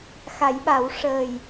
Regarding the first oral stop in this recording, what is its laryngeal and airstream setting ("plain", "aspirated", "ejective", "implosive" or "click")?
implosive